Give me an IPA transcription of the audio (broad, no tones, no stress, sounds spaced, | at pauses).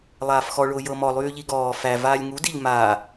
lˠ aː f x ɔ ɭ ʊː j ɤ m ɔ lˠ yː ʎ i ɡ ɔː f æ v aː lʲ ŋ u d i ʎ m aː